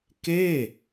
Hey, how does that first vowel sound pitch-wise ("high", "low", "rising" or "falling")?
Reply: falling